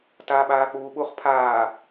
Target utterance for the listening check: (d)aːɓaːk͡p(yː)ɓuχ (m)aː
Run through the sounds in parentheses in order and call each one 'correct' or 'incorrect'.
incorrect, incorrect, incorrect

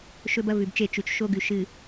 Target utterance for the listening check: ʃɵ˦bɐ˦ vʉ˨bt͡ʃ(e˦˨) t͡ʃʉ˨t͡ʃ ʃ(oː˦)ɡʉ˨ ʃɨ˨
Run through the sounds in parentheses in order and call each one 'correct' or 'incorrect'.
correct, incorrect

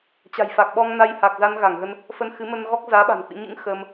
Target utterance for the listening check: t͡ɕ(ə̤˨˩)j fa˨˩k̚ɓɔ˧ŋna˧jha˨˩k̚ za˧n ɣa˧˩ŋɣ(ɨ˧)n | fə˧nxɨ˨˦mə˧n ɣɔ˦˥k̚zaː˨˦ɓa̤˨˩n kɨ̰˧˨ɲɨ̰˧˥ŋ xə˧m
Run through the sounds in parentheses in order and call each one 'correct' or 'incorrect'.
incorrect, incorrect

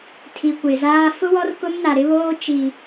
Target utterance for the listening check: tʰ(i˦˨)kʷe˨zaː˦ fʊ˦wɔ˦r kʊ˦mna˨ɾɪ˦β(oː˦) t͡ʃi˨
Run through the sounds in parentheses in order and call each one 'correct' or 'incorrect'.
incorrect, correct

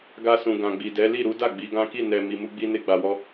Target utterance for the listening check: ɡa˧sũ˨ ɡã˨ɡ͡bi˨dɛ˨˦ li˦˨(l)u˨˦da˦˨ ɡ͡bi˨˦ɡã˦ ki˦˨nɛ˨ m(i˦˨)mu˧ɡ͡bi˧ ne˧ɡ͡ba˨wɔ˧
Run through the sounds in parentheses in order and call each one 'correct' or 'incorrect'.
incorrect, incorrect

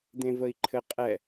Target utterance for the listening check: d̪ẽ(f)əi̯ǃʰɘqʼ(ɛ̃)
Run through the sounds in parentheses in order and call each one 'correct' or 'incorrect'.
incorrect, incorrect

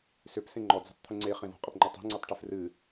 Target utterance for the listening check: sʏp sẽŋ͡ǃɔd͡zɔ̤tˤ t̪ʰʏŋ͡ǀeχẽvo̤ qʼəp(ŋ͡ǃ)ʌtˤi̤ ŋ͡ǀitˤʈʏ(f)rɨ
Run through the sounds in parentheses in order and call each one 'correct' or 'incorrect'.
correct, correct

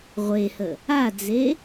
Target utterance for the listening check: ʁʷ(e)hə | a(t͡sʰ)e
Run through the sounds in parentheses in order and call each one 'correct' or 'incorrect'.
correct, incorrect

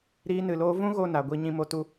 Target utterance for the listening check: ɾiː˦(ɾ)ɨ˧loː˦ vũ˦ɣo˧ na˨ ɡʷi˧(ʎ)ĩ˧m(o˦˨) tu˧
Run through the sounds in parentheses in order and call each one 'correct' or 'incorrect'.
incorrect, incorrect, incorrect

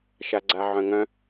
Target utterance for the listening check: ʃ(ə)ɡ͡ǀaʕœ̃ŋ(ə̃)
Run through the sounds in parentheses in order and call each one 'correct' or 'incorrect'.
incorrect, incorrect

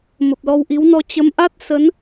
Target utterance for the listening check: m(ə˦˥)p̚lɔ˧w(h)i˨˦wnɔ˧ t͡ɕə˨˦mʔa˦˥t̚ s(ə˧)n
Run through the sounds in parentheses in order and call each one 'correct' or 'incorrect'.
incorrect, incorrect, incorrect

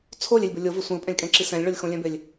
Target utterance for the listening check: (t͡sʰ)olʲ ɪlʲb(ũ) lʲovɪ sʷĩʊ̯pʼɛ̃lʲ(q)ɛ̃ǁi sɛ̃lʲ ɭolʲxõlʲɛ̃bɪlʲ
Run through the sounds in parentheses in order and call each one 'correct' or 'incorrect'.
correct, incorrect, incorrect

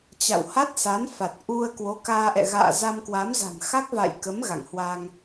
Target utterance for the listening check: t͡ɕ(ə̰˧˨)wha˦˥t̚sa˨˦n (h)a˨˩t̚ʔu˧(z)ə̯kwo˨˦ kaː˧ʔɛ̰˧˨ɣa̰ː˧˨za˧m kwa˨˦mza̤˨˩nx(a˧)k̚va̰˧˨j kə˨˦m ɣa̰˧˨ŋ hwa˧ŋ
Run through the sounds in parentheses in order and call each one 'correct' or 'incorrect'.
incorrect, incorrect, incorrect, incorrect

